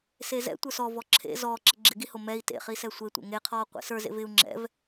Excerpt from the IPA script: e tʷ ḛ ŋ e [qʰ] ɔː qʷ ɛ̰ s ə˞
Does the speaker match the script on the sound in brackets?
yes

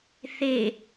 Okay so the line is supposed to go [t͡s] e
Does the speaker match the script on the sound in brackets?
no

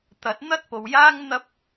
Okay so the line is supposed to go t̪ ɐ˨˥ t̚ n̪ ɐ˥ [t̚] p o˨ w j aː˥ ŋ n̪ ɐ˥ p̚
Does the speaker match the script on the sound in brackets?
yes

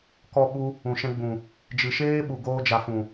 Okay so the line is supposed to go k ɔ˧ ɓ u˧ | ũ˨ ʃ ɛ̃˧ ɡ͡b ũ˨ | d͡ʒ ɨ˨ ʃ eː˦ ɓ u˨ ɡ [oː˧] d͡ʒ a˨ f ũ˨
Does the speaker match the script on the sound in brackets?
yes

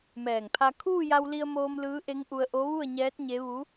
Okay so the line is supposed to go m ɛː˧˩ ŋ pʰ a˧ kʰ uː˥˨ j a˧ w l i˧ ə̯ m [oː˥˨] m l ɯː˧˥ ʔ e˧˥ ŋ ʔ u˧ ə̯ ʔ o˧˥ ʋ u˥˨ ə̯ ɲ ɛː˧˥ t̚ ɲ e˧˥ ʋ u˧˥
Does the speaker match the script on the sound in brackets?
no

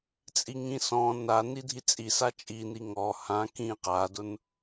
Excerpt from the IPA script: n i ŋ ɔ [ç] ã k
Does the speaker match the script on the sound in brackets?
no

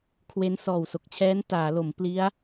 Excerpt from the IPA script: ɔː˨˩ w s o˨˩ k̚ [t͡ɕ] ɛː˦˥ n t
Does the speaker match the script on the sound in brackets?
no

